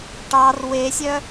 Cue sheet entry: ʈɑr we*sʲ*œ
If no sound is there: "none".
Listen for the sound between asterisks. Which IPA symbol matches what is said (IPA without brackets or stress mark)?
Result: sʲ